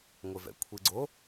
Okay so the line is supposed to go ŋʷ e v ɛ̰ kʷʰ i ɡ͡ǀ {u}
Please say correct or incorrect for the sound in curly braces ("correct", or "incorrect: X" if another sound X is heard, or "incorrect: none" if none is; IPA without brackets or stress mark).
incorrect: o